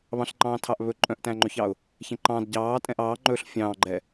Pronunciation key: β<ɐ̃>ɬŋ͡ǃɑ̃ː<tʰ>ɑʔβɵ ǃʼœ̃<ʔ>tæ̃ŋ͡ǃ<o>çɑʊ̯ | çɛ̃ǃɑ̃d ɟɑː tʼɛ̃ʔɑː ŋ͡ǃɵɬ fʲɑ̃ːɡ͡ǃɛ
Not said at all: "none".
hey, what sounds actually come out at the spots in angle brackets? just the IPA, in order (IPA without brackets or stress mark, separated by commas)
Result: ɑ̃, tʰ, ʔ, ɵ